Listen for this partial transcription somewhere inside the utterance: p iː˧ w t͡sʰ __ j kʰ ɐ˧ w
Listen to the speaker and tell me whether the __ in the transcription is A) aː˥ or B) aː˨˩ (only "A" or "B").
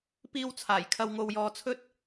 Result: B